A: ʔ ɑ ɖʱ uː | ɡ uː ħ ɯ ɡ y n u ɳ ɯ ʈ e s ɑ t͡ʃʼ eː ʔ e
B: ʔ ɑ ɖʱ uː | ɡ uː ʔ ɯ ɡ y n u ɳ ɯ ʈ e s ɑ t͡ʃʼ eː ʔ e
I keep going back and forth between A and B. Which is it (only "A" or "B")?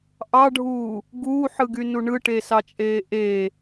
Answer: A